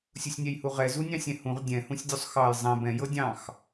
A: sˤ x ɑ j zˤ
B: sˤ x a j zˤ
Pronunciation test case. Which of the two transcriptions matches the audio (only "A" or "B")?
A